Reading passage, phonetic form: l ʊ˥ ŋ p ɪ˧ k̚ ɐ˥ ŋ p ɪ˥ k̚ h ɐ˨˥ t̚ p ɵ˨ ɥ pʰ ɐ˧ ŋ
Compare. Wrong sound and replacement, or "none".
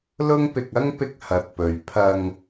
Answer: none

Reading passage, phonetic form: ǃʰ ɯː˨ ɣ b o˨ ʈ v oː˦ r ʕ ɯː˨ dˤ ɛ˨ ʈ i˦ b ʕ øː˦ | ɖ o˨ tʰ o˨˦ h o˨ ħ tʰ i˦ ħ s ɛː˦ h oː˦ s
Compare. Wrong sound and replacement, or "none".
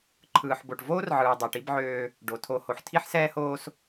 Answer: ɣ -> ħ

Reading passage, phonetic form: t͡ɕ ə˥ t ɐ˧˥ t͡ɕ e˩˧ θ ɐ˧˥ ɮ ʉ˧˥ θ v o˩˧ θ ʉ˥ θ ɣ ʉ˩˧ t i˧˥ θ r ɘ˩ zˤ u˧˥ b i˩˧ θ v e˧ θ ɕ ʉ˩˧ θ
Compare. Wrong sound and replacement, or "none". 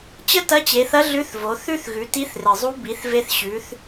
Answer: none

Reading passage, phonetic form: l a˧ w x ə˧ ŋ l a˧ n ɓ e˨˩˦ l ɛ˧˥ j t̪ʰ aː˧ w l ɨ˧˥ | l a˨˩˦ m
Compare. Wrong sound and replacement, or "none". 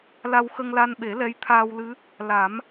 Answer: none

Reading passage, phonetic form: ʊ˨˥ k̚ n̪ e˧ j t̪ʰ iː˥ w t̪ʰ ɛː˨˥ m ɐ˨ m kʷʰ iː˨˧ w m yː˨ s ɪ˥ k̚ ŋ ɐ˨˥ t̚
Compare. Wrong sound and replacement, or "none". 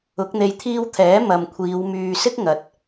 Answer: none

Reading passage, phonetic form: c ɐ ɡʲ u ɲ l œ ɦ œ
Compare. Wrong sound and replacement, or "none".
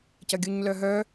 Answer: none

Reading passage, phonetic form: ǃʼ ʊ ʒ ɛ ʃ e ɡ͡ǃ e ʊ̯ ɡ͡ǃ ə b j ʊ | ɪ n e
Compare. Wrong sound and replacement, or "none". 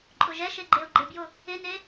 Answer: ə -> ɪ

